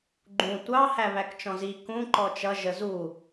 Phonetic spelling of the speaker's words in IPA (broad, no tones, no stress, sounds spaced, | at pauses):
ɡ͡ǃ ũ tʷ ɑ h æ β æ k t͡ʃ ɔ̃ z i k ũ ǃ ɔ t͡ʃ ʌ ʒ ə z u